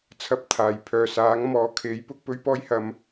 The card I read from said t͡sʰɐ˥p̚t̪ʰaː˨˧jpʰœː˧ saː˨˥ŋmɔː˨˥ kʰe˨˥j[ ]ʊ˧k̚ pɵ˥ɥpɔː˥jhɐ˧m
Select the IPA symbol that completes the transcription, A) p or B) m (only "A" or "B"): A